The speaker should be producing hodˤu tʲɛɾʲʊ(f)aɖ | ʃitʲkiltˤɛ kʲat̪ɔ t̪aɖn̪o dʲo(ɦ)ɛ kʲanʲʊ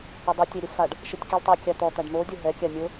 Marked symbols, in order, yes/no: yes, yes

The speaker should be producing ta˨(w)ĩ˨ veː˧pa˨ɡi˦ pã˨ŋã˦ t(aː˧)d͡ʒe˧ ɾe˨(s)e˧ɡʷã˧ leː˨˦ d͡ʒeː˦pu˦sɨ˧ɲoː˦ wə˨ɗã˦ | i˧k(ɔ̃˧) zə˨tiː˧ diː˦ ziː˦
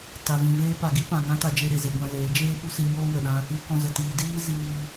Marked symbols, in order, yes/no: no, no, no, yes

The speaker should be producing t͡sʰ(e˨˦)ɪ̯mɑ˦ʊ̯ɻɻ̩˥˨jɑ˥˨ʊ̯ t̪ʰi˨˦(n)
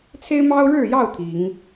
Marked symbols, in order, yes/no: no, no

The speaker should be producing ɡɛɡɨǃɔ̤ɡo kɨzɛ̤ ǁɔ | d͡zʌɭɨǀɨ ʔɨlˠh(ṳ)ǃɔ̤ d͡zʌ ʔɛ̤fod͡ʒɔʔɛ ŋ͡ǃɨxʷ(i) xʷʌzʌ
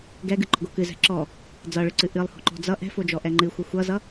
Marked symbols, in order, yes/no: no, no

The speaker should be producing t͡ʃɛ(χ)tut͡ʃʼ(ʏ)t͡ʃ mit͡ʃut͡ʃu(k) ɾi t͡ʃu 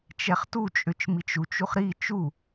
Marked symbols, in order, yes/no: yes, yes, no

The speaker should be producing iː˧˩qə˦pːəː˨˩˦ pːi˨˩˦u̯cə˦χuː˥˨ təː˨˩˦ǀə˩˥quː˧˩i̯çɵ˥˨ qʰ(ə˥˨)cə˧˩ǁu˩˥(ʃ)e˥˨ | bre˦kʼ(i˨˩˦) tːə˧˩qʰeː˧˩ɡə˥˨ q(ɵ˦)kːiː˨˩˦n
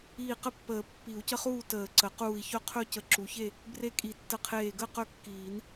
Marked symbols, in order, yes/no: no, no, yes, no

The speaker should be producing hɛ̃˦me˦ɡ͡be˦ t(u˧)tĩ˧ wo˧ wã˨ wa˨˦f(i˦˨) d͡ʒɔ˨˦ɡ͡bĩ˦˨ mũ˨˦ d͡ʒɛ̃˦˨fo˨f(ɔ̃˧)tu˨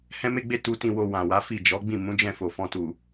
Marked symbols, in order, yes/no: yes, yes, yes

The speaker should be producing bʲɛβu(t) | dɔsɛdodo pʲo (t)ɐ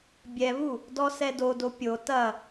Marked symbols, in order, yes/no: no, yes

